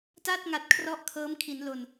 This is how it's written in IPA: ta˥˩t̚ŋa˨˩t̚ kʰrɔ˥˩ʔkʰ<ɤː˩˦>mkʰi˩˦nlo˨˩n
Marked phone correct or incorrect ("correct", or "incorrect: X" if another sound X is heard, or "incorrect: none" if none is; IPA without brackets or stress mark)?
incorrect: ɤː˦˥